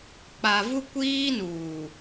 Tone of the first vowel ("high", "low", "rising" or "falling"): low